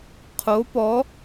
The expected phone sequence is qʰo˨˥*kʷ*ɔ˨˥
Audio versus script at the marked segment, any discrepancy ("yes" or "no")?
yes